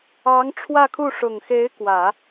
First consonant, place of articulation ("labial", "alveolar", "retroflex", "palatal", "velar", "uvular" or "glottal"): velar